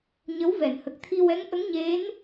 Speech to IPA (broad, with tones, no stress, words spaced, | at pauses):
ɲə˧˥wvɛ˨˩˨nhə˨˩k̚ t̪ʰi˧wɛ˧˥ŋʔə˧˥ŋɲe˧˥n